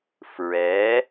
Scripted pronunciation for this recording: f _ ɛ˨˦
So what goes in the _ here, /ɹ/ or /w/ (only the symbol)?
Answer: ɹ